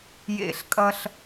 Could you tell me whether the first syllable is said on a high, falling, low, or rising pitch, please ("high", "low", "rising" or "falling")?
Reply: high